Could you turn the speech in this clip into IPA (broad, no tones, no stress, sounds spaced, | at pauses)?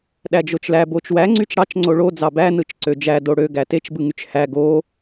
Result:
ɗ æ d͡ʒ o t͡ʃ l æ b o t͡ʃ w æ ŋ͡ǀ y t͡ʃ ɽ ɑ t͡ʃ ŋ͡ǀ o ɭ o d͡z ɑ b æ n ɯ t͡ʃ ǀ ø d͡ʒ æ d o ɽ ø ɡ æ t e t͡ʃ b ɯ ŋ y t͡ʃ h æ ɡ o